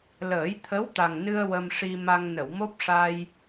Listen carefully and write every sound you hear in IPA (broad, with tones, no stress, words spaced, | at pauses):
ləː˨˩˦jt̪ʰə˧˥wt̪a˨˩ŋnɨ˧ə̯ wə˧mʂi˧ma˧ŋ nə˨˩˨wmo˦˥p̚ʂa˧j